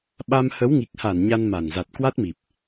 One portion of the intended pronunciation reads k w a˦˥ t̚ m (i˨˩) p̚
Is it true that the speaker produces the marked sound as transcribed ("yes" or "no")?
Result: yes